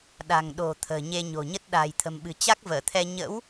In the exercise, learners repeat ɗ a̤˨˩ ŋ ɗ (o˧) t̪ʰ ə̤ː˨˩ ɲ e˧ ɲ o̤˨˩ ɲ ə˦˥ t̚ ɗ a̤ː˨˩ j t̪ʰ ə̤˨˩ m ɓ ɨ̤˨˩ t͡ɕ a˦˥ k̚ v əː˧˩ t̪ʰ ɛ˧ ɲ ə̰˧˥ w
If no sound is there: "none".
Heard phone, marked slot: o̤˨˩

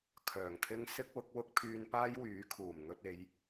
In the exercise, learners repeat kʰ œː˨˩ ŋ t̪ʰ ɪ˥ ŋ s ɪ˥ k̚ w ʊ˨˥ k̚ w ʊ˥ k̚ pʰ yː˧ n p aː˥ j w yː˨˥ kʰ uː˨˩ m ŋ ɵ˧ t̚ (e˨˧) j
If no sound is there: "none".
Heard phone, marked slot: e˨˧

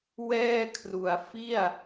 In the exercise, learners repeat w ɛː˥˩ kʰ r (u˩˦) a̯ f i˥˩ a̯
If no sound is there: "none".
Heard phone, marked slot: u˩˦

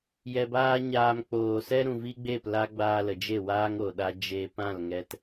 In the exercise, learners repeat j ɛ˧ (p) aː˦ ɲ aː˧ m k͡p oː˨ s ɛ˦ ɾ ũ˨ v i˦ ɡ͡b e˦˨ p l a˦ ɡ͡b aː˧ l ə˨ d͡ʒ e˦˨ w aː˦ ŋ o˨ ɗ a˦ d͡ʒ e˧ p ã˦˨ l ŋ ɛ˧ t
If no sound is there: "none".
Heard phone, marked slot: b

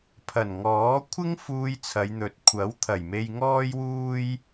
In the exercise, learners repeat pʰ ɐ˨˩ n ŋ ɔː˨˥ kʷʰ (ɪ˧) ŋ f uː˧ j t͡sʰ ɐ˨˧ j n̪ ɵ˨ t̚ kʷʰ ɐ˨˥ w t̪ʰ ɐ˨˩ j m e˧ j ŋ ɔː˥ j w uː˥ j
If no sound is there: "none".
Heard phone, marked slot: ɪ˥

